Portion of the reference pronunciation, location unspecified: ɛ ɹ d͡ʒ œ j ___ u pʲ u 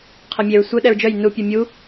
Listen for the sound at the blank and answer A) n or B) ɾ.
A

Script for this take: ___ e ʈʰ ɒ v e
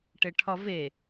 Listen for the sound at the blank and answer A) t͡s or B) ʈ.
B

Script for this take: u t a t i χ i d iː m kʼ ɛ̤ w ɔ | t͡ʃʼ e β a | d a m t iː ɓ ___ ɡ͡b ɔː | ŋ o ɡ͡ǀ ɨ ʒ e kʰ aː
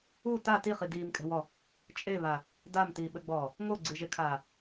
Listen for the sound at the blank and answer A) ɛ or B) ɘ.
B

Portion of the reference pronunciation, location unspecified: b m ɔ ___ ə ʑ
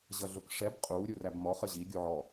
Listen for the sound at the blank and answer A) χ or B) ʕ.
A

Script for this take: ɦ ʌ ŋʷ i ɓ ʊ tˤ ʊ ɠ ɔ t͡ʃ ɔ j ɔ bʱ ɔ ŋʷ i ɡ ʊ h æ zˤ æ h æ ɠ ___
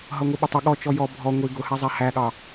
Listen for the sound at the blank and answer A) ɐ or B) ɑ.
B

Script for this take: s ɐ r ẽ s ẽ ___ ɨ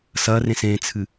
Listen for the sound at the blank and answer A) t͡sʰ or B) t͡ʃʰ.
A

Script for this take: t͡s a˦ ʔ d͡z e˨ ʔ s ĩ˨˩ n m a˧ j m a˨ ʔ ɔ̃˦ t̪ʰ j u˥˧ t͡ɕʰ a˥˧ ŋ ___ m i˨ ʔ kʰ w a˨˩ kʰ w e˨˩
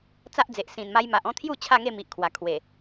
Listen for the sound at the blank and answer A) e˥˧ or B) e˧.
A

